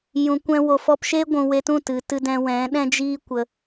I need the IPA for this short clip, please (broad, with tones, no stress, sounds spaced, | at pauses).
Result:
j ũ˨ kʷ ɛ̃˧ w o˨ f ɔ˧ p ʃ e˦ ɡʷ ũ˨ w e˧ t ũ˦˨ t ɨ˨ t ɨ˧ d ɛ̃˧ w ɛ̃˨˦ ɗ ɛ̃˦ d͡ʒ iː˦ kʷ ə˧